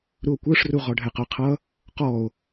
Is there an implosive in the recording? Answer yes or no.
no